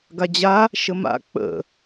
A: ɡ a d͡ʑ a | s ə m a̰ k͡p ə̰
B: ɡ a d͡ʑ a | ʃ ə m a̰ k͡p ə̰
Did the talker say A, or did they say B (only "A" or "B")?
B